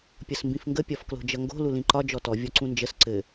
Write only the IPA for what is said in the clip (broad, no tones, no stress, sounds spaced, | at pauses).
pʲ ʌ s m b ĩ f ŋ ɡ ə pʲ ɒ f k l o̤ d͡ʒ ʌ ŋ ɡ o̤ l u l ĩ ǃ ɒ d͡ʒ ɔ t ɔ vʲ ɔ ǀ ũ n d͡ʒ ə s ǀ ɘ